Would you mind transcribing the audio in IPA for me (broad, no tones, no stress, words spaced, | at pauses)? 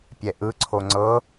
pʲɛʔɯ ǀʰoŋ͡ǀɤ